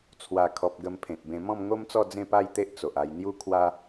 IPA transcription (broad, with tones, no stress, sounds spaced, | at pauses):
t͡sʰ w a˨˩ kʰ ɔ˨ p̚ ɡ ə˧ m pʰ ẽ˨ t̚ b ẽ˧ m ɔ̃˥˧ m ŋ o˦ m t͡s ɔ˥˧ d͡z ẽ˥˧ p a˥˧ j t̪ e˦ ʔ t͡s o˨ ʔ a˧ j n̪ j u˦ kʰ w a˦